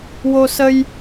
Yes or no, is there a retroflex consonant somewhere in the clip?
no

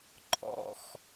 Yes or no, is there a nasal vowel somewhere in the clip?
no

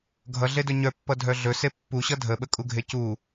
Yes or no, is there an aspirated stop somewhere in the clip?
no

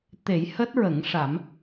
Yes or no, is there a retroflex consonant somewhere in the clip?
yes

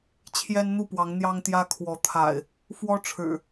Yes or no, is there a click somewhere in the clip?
no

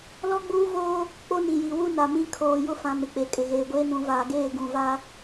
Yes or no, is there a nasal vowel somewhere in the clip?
yes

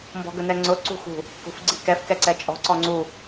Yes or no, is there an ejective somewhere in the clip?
yes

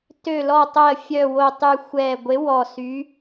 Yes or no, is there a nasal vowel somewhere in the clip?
no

